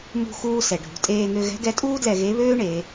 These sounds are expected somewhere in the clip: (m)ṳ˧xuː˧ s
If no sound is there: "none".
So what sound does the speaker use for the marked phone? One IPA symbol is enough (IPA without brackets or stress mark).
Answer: m